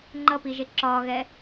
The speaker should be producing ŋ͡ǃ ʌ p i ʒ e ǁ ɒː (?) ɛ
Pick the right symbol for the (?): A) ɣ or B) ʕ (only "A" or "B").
A